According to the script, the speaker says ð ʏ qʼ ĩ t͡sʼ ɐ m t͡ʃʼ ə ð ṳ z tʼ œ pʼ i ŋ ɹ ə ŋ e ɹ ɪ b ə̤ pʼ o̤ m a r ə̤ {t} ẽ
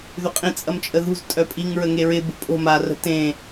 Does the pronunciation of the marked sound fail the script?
no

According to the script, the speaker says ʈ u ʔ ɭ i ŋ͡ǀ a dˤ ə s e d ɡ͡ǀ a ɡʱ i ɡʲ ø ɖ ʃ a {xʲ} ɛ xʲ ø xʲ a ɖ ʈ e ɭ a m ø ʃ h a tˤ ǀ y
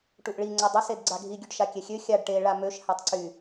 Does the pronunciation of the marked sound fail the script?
yes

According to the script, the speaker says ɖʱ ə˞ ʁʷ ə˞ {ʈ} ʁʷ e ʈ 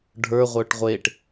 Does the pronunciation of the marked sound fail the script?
no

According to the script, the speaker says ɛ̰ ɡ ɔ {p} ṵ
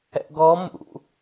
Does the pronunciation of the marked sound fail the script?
yes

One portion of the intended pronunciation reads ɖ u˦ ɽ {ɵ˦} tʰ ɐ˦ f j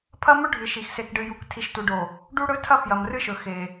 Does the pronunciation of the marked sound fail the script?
no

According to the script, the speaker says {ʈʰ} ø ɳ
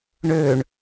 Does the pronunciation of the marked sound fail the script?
yes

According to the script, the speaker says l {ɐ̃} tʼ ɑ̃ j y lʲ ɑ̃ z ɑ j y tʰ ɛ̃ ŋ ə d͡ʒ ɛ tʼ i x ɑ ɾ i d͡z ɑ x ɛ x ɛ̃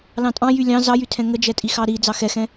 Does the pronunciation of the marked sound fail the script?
yes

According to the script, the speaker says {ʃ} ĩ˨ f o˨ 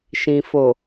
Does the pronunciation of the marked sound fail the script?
no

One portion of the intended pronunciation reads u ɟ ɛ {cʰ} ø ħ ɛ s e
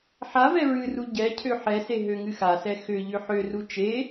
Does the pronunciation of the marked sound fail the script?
no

